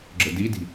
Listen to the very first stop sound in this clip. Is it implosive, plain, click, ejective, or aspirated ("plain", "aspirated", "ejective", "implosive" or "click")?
click